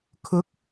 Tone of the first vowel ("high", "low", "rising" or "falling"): rising